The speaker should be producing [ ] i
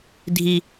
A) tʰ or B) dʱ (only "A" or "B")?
B